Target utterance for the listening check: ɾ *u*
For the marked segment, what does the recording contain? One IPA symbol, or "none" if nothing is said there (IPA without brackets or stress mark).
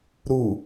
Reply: u